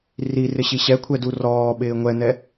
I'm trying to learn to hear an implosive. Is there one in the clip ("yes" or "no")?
yes